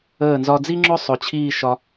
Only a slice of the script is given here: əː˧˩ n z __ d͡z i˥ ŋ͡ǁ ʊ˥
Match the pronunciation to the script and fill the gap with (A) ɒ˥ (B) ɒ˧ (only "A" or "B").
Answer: B